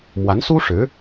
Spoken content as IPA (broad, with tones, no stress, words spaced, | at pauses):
mwa˧˥nsu˥ ʂɻ̩˧˥